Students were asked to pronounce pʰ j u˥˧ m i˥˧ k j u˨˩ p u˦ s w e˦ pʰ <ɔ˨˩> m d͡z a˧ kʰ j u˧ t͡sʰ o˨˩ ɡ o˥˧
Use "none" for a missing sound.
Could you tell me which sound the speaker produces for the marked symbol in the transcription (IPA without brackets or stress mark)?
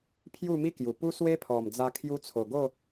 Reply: ɔ˨˩